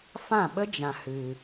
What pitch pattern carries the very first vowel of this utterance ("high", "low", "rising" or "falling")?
falling